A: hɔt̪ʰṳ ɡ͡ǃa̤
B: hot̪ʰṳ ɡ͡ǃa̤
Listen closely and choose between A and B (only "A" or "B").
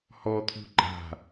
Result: A